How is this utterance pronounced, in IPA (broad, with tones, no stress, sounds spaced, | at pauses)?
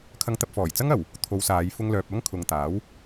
kʰ ɐ˧ ŋ t̪ ɐ˧ p̚ f ɔː˨˩ j t͡s ɐ˥ ŋ ɐ˨˩ w | t̪ʰ o˨˧ w s aː˨˧ j f ʊ˧ ŋ l œː˨ p̚ ɐ˥ ŋ kʰ ʊ˨ ŋ t̪ aː˨˥ w